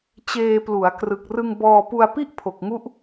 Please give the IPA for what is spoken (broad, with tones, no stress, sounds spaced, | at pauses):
t͡ɕ eː˧ p l u˩˦ a̯ k r ɯ˨˩ k̚ r ɯ˧ ŋ b ɔː˧ p u˧ a̯ p i˥˩ ʔ pʰ o˨˩ k̚ ŋ u˦˥ ʔ